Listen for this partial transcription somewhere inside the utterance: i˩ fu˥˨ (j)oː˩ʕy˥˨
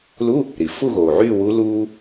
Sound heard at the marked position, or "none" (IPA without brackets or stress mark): ɣ